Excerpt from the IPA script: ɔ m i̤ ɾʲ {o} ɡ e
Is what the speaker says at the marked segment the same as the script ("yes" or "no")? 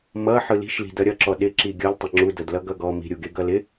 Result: no